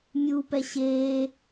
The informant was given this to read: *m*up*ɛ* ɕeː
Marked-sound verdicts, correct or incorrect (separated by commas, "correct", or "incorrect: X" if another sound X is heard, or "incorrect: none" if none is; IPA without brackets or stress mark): incorrect: mʲ, correct